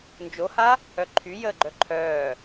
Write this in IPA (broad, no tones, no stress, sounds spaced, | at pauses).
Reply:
n d͡ʒ o h a | œ ǃʰ y j əː ɡ͡ǃ œ ǃʰ œː